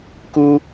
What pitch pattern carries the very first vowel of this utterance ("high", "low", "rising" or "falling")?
high